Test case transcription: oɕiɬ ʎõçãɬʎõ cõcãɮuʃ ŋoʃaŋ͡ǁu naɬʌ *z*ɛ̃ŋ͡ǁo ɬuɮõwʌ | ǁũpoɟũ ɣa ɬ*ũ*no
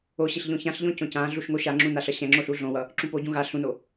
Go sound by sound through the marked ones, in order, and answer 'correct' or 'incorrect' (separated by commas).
incorrect, correct